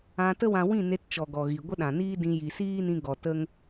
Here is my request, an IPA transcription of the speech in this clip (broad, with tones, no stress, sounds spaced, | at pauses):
ã˧ t ə˦ w ã˧ w ĩ˦˨ n e˧ t t͡ʃ ɔ˨ ɡ ɔ˨ ɣ i˨ ɡʷ ə˦ ɗ ã˨ n iː˦ d ĩ˧ j i˨ s iː˦ n ĩ˧ ɡ ɔ˨ t ə˦ ŋ